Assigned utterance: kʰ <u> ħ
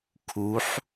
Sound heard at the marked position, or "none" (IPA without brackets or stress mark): u